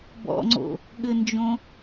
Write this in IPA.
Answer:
bɔ̰ŋ͡ǀo̰ | ɠɘnd͡ʒõ

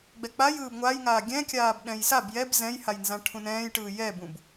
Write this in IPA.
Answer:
ɡ͡bɛk͡paj ɯːbŋʷajŋaː ɡʲɛ̃kʲaːb ɗɛ̃jsab jɛb zɛ̃jhajnzã ʈʰũnɛ̃ːjʈɯː jɛbũb

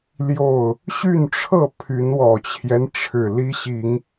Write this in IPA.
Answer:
ljo˥˨ʊ̯ | ɕy˥˨nʈ͡ʂʰɤ˥˨ pʰy˨˦nwɔ˨˩t͡ɕʰjɛ˦n ʈ͡ʂʰɻ̩˨˩li˦ɕi˨˦ŋ

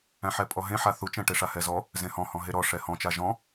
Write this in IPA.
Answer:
æ̃ħɛpʼɔɦẽ ħaθut͡ʃɛ̃ ʈeʂahɛzɔ | zẽhɔ̃hɔ̃ ɦeɾɔ ʂɛhɔ̃t͡ʃa ʒɔ̃

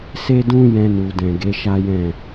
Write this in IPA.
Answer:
se˦dũ˦ jɛ̃˧nu˨ dɛ̃˨ɡe˨˦ ʃa˦jɛ̃˦˨

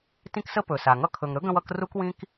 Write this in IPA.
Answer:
tĩ˦ksə˦ pɵ˩sa˩ŋʌ˦ kʰɵ˨ŋɾɵ˥ɡə̃˦wʌ˦k ru˥kwĩ˥k

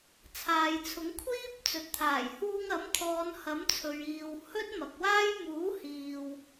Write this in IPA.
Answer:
t͡sʰaː˨jt͡sʰʊ˨˥ŋ kʷʰiː˥p̚t͡sɵ˨t̚t̪ʰaː˨˩j huː˧ŋɐ˨˥mt̪ʰɔː˨˧n hɐ˨˥mt͡sʰɵ˨ɥiː˨w hɵ˥t̚ mɐ˨k̚waː˥j muː˨˥hiː˨w

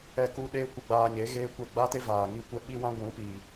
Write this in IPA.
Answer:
ɛ˦ku˦ ɗeː˦ kʷə˧ɡ͡baː˧ɲe˨˦ ɣeː˦kʷɛ˦˨ ɡ͡ba˦te˦ vaː˨ŋi˦˨kʷɛ˦ ɓi˦wã˦ ɡʷũ˨˦piː˨

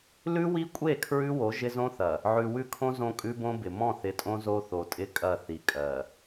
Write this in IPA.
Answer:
lʉ˦wi˦kʷʼe˦˨ kʰɹʉ˦wo˨˦ ʒɪ˦zõ˦θɐ˨ | ʕʉ˨wʉ˦kʰõ˦ zõ˦kʼʉ˦bõ˦bɪ˨ mɔ̃˦˨θɪ˨˦tʼõ˦ zo˦θo˨tʼɪ˦kʼɐ˦˨ θi˨kʼɜ˨

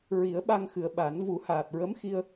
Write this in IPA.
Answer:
ɹi˨˩˦ə̯ ɓa˧ŋxɨ˨˩˨ə̯ ɓa˨˩˦n vu˨˩˦haː˨˩t̚ɹə˧˥mxi˧ə̯

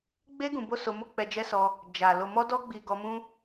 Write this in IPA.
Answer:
ɡ͡be˦ ɡũ˧bo˦so˧mo˦ k͡pɛ˧d͡ʒɛ˦sɔ˧ | d͡ʒa˨ lo˨mɔ˧dɔ˧ɡ͡bi˨ ɡɔ˧mũ˦

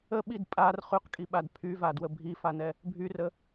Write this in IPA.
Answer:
əɓid pʼar χyqkʼiɓad pʰyvadwə bʱifanɛ | bʱyrə

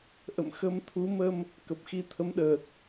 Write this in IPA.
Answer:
ʔə̰˧˨mxə˧mt̪ʰu˨˦mə˧m | kə˨˩p̚xi˧t̪ʰə˨˦mɗəː˨˩t̚

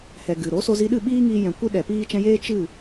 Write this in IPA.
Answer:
hɛ˨ ɡɨ˨ ɾo˨˦ so˧zi˧ɗɨ˦˨ ɓiː˦ŋiː˧jɛ̃˨ kʷɨ˦ɗɛ˨piː˦ t͡ʃɛ̃˧jeː˦ t͡ʃɨ˦˨

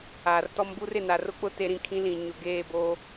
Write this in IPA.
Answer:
aː˨rtɔ˦mbu˦r ɪ˨na˨rʊ˦k͡pʊ˦ te˦ɾĩ˦kʰĩ˦lĩ˨ ɲʊ˨ɡeː˦˨ boː˦

